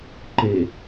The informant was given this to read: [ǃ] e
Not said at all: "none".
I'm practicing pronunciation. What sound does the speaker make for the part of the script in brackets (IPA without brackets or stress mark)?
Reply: ǃ